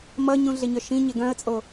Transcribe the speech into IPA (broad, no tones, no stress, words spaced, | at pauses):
mʌɲũɮeɲœ ʃĩɲe ɡœ̃ə̯t͡sʼo